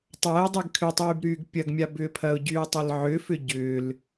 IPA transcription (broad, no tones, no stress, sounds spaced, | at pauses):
tˤ a ɪ̯ dˤ y ɡ kʰ ʏ tˤ yː b ɾ yː ɡ pʲ ɐ ɡ mʲ a b ʏː pʰ ɐ ʊ̯ ɟ yː ə̯ tˤ ɐ l ʕ ʏ f ʏ ɟ ʏː l